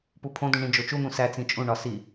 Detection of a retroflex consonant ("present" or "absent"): present